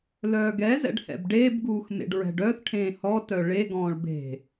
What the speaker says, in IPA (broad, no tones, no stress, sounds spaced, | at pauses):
l œː ɡ ɛ z ɛ̰ ɖ h ɛ̰ b ɖ eː b ɡ uː x m ḛ ɖ ɹ ɛ̤ ɖ œ θ ʈʰ ẽː h ɔ t œ ɭ e ɡ ɔ̃ː ɭ b e̤